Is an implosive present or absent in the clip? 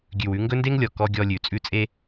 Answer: absent